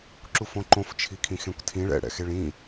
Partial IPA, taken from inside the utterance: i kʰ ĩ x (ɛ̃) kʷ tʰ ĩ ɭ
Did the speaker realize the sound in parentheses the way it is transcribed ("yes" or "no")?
no